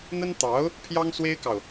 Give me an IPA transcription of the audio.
n̪ ə˥ n t̪ ɑ˧˥ ʊ̯ | pʰ j ɑ˥ ŋ s w e˥ ɪ̯ k ɑ˨ ʊ̯

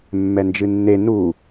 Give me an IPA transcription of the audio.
mː ɛ n d͡ʒ ɨ nː e n u

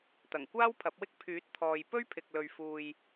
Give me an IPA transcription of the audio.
t̪ ɐ˨˩ ŋ kʷ aː˥ w pʰ ɐ˨˥ p̚ w ɪ˥ k̚ pʰ yː˨˥ t̚ t̪ʰ ɔː˨ j p ɵ˥ ɥ pʰ ɪ˨ k̚ l ɵ˨ ɥ f uː˨ j

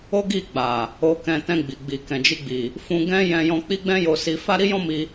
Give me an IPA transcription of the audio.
o˦ ɡ i˦˨ ɡ͡b a˨ | o˧ k ɛ̃˧ t ɛ̃˧ ɡ͡b i˨ ɡ͡b i˨ k ɛ̃˨ d͡ʒ i˧ ɡ͡b i˨ | f ũ˧ ɡ ɛ̃˦ j ɛ̃˧ j ɔ̃˧ k͡p i˦ ɡ͡b ɛ̃˦ j o˧ s i˧ f a˦ ɾ i˦ j ɔ̃˦ m i˧

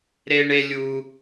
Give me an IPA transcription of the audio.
ɾ e˦ ɳ e˦ lʲ u˧

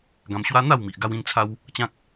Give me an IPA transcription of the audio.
ɡ ã˧ m ɕ w a˦ n̪ a˥˧ w m i˨ ʔ ɡ a˧ w ĩ˧ n t͡sʰ a˧ w | t͡ɕ ã˦ k̚

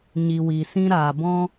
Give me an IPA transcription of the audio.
ɲ i˨ w i˨ s ĩ˧ ɾ aː˨ b ɔ̃˦

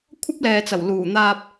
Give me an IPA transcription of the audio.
kʷʰ ɐ˥ p̚ l ɛː˨ t͡s ɐ˨˩ w l uː˨˩ n̪ aː˧ p̚

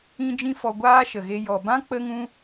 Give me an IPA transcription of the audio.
ĩ˦ d͡ʒ ĩ˦ f ɔ˧ ɡʷ aː˦ ʃ ə˨ ɣ e˧ j ɔ˨ b ã˦ k͡p ə˦ ŋ ũ˦

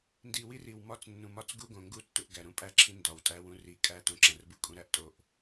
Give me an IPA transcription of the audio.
n d i˨ w i˦ r i˨ w m ɒ˦ t͡s nː ũ˨ m ɒ˦ t͡s ɡ u˦ ɡ õ˨ ŋ ɡ u˦ tː u˨ ʔ ɡ æ˨ ɾ ũ˦ pʼ æ˦ ǁʰ ĩ˦ n d ɒ˨ w tʼ æ˦ w ũ˦ r i˨ kʼ æ˦ t õ˨ ǁ æ̃˨ r b u˦ kʼ ũ˦ ɾ æ˦ ʔ tʼ o˦ ʔ

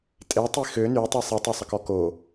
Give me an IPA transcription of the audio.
tʼ e tˤ i x ø n y tˤ i sˤ i tˤ o sˤ ə k ɔ k o

